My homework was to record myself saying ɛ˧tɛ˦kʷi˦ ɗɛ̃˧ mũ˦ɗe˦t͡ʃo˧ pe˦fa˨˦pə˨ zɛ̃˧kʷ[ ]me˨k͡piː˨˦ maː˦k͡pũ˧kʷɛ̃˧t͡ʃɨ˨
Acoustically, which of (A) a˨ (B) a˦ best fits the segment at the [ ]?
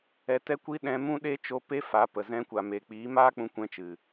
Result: A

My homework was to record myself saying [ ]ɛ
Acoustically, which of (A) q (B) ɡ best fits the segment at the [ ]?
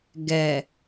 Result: B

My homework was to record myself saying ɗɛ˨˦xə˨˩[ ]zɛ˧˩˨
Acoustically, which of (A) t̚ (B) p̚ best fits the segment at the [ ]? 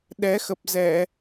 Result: B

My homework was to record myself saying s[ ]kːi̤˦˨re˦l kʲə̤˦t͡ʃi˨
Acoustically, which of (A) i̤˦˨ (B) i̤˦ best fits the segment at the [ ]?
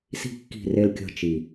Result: A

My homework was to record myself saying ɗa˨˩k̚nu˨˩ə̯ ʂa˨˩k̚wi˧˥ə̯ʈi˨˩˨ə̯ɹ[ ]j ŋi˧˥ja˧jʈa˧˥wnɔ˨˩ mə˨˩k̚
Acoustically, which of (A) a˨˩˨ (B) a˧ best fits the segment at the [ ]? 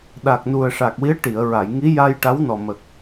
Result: A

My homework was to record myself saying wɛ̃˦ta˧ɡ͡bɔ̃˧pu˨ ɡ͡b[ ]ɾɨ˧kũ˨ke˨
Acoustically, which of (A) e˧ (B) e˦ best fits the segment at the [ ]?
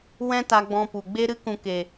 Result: A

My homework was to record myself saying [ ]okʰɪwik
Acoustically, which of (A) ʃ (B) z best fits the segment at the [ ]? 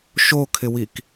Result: A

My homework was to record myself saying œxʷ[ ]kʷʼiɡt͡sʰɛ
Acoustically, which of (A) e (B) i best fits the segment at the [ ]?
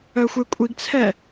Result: A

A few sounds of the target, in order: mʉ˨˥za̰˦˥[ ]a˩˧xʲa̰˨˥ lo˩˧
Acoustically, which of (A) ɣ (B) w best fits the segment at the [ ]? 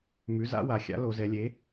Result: B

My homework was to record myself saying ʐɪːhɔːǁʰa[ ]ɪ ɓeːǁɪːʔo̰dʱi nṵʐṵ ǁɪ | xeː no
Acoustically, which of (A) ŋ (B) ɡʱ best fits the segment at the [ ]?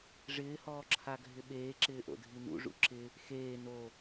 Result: B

